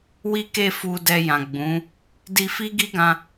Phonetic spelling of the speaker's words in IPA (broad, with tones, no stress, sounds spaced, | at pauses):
w i˦ k e˦˨ f u˧ d ɛ˧ j ã˨ ɡ͡b ũ˨˦ | d i˧ f i˦ ɡ i˦ ɡ ã˧